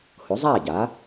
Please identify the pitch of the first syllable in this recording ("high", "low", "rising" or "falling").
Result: rising